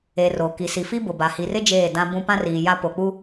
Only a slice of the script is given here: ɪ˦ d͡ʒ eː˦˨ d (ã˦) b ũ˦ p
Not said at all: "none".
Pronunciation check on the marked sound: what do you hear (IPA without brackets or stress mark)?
ã˦